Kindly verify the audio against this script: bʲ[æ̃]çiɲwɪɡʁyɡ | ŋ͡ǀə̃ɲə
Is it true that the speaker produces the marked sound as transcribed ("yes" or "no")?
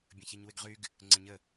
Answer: no